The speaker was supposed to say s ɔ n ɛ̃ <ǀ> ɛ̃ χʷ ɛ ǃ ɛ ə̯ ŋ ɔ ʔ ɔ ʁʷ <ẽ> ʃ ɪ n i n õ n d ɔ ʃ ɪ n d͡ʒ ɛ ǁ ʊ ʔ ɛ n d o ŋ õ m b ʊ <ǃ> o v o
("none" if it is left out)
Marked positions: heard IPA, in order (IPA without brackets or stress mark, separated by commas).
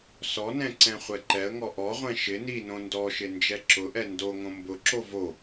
ǀ, ɛ̃, ǁ